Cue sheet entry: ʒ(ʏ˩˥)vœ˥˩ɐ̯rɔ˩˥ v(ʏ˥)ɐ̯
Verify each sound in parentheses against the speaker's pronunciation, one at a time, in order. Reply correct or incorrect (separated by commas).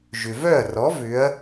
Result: incorrect, incorrect